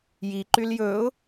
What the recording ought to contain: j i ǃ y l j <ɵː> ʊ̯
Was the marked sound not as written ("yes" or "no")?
no